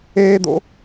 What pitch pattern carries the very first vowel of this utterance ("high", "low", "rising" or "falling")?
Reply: high